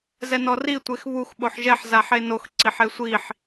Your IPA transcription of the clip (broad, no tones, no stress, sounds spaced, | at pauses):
z ɛ n ɔ r i tʷ e x β u x ɓ o ħ ʒ ɛ ħ z a ħ e n o x ǀ i ħ e sʷ i ħ